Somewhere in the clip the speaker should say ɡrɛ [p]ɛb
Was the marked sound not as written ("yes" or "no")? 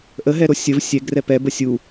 no